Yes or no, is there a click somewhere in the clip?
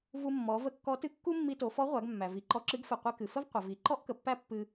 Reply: yes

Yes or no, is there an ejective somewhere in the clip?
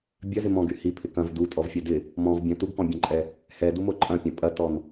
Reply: yes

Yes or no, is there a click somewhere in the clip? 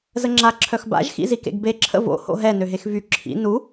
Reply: yes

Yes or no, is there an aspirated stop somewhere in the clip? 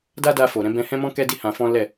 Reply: no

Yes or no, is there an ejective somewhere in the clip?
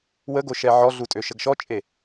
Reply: yes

